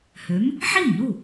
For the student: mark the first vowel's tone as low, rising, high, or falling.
rising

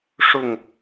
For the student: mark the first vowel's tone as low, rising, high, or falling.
falling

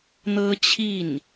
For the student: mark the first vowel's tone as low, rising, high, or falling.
high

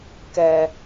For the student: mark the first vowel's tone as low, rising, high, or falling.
high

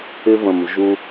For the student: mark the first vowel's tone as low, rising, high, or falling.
high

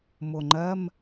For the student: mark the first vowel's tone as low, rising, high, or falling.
low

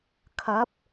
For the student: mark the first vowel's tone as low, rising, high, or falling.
rising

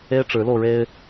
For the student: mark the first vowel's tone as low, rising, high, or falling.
high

